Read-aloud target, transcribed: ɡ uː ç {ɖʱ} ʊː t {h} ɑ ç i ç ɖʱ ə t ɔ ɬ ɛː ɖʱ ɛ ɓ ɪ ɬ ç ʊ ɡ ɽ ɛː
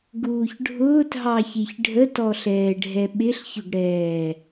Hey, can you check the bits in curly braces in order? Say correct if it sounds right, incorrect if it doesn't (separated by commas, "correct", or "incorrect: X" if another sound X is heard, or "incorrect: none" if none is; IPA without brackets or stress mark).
correct, incorrect: ɦ